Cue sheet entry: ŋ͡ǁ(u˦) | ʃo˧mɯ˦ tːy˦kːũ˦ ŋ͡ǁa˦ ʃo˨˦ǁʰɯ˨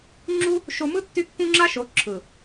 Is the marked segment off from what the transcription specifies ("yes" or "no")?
no